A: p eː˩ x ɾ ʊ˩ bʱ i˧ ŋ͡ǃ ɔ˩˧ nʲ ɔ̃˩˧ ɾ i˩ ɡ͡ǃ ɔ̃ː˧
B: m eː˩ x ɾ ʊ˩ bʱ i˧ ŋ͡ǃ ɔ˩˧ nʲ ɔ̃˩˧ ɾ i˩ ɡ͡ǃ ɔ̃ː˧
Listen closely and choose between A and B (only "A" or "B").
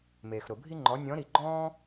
B